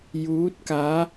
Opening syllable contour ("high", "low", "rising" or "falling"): rising